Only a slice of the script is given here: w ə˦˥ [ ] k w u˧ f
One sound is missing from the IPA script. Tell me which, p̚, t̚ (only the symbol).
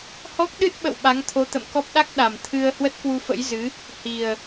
t̚